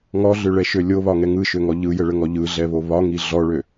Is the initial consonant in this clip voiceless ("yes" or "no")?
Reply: no